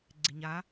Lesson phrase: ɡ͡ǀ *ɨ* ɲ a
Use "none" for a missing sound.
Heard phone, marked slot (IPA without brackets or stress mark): ɪ